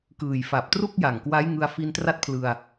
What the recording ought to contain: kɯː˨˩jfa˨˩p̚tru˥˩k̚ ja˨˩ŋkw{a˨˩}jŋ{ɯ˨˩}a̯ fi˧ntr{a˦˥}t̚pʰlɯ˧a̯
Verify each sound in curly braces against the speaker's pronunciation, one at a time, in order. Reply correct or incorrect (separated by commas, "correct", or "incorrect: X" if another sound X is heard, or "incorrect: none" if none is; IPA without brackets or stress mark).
incorrect: a˦˥, incorrect: ɯ˧, correct